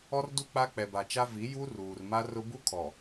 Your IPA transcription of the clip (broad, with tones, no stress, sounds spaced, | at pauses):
ɔ˦ r d u˦ k͡p a˦ k͡p ɛ˨ b a˨ t͡ʃ a˦ v i˨˦ j u˦ r uː˨ r m a˦ r ʊ˦ b u˦ kʰ ɔ˨